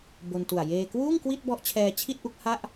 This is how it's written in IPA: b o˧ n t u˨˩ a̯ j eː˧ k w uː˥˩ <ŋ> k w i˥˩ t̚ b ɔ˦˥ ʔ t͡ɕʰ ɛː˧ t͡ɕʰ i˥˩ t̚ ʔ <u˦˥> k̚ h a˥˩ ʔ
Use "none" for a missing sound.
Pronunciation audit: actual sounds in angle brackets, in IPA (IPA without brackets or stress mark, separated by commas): ŋ, u˦˥